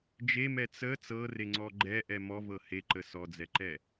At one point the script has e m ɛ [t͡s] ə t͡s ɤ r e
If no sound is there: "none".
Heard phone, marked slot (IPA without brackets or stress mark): t͡s